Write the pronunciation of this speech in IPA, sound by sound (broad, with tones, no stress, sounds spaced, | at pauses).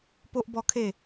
p o˦ ʔ b ɔ˦ kʰ e˥˧